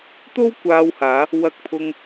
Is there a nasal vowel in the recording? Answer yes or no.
no